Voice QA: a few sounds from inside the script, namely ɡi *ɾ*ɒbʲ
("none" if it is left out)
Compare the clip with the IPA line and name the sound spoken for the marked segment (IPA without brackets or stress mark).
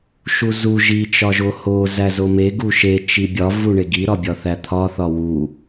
ɾ